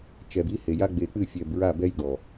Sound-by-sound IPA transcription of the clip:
t͡ʃɛ˨bi˦he˨ja˦ ɡ͡be˨ k͡pɨ˦˨fʲɛ˨bɹa˦˨ bɛ˦jɡɔ˨

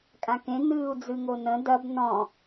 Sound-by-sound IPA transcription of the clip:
kʼãkẽ nɨːu̯d͡zɨŋonə̃ dɐb nɔ̃

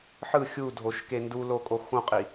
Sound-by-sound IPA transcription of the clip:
ħɯ xʲudʱoʃke ndulokʼo xõqʼi

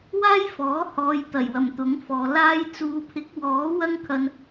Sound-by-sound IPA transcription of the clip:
waː˥jfɔː˨˥hɔː˨j t̪ɐ˨˩jwɐ˨˩m t̪ʊ˨˥ŋfɔː˨laː˥j t͡suː˨˧pʰɪ˨˥k̚wɔː˨˥ wɐ˥ŋkʰɐ˧n

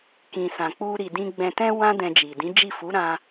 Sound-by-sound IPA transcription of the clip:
kĩ˨sã˨ k͡pu˧ ɾi˨dĩ˧ ɡ͡bɛ̃˨tɛ̃˧ wã˦dɛ̃˧d͡ʒi˨ dĩ˨˦d͡ʒi˦˨ fu˨˦ɾã˧

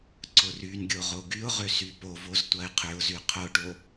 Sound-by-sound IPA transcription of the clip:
ǀʊrynɡʲo ʁoɡyʊ̯ʁø sypovoz tʷɐɪ̯qʰʏʊ̯zy qʰʊʈo

